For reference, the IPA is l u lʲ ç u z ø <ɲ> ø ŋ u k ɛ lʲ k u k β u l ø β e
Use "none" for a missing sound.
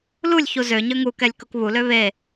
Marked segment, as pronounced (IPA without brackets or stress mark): ɲ